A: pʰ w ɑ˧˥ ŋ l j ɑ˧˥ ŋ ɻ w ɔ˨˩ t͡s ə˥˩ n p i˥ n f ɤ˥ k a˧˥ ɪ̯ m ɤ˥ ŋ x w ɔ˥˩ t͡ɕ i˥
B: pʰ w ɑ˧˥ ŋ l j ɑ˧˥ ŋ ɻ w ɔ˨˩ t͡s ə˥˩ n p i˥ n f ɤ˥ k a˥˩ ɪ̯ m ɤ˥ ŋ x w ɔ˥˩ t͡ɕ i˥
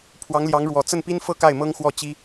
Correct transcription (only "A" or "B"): B